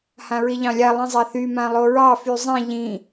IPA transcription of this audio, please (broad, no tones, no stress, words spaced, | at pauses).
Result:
hãɹiʎɑ̃lʲa lˠĩzˤaθy mãlˠoɹɑ fyzˤĩ ʎĩ